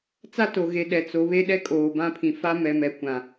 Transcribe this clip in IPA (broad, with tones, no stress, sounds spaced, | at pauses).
t͡s a˦ t o˨ ɣ e˨ ɗ ɛ˨ t͡s o˨˦ β e˦ ɗ ɛ˦ kʼ oː˨ b ã˦˨ pʰ ĩ˨ f a˦ m ɛ˨ m ɛ˨ kʷ ã˨